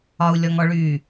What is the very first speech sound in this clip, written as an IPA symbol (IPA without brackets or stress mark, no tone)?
ɒ